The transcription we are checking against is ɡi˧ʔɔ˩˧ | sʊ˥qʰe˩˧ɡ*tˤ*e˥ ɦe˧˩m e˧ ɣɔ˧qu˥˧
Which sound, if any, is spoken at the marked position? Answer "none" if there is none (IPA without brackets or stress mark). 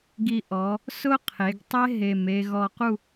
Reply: tˤ